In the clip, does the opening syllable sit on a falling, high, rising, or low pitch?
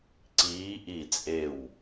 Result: rising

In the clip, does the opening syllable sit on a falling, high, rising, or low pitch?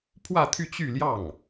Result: falling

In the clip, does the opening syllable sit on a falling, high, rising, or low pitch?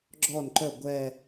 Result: falling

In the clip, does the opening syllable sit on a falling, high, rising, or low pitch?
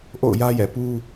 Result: falling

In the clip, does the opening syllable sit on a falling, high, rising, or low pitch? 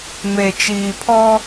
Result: low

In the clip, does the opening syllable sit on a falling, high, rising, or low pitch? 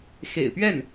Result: low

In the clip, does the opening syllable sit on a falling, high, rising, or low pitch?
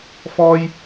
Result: high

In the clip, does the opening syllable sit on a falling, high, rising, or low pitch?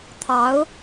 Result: rising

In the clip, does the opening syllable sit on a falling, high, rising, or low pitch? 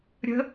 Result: rising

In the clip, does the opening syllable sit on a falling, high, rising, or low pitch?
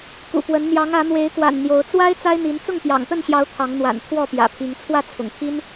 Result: low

